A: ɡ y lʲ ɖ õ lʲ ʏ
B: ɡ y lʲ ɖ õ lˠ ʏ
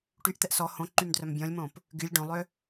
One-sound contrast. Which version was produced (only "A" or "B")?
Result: B